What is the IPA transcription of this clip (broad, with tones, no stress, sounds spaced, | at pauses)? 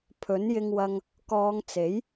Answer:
pʰ ɵ˨˥ n j ɪ˥ ŋ w ɐ˥ ŋ | k ɔː˨˧ ŋ t͡s e˨˥ j